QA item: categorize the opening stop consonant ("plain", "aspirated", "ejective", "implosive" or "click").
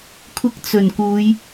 aspirated